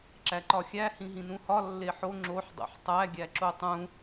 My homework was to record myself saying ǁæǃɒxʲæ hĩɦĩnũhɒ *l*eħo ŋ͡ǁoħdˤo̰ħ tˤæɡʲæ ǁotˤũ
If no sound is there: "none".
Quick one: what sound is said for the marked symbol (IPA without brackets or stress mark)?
lː